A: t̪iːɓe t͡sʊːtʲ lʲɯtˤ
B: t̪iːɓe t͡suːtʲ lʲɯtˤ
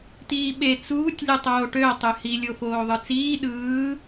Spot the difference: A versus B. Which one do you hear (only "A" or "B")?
B